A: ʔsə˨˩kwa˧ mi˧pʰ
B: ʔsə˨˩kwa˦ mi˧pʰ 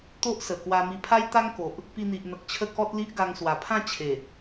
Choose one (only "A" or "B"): A